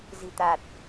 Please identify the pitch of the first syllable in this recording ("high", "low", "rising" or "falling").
low